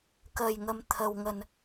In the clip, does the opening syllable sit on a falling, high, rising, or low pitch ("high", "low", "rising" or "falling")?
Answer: low